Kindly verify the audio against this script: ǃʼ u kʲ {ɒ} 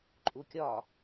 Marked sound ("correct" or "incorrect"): correct